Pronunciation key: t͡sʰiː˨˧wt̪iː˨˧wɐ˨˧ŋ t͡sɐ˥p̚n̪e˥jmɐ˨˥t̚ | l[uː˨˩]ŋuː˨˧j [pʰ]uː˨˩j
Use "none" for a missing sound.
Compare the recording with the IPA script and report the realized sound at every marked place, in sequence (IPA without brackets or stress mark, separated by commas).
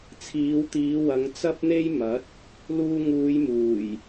uː˧, m